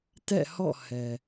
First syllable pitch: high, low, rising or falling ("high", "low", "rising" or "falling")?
falling